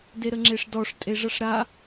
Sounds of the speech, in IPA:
d e ɾ ə ŋ͡ǁ e ʂ d ɔ ʂ tʼ e ʐ ʌ ʂ ɾ a

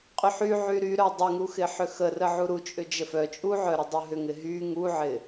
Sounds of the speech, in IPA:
qʼ ʏ ħ y ʕ y ɾ y ɾ œ dˤ ə ŋ u x ɪ ħ ʏ x ə r ə ʕ u ɾ u t͡ʃʼ ʏ d͡ʒ ə f œ t͡ʃʼ u ʕ œ ɾ ɪ dˤ u ɦ ʏ ŋ ɪ ɦ y ŋ u ʕ ɪ

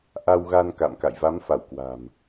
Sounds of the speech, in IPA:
ʔ a˧ w ɣ a˧ n k a̰˧˨ m k a̰˧˨ j v a˨˦ m f a˧˩ w k w a̤˨˩ m

